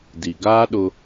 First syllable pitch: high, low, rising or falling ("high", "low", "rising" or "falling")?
low